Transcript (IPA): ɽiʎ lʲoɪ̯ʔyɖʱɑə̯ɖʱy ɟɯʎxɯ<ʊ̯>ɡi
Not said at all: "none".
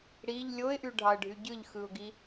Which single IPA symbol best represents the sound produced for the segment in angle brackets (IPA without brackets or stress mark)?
ʊ̯